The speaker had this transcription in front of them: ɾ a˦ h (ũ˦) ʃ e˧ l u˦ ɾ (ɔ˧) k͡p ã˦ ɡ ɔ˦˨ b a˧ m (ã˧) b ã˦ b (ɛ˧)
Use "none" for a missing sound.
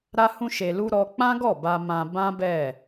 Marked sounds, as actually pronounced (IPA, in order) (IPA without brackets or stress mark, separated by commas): ũ˦, ɔ˧, ã˧, ɛ˦˨